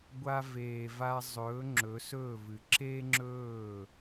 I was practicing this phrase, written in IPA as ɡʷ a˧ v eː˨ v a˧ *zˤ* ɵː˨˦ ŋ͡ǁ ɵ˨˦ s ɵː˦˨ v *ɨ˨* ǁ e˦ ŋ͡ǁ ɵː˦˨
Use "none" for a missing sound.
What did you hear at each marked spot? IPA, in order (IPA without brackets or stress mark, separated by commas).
zˤ, ɨ˨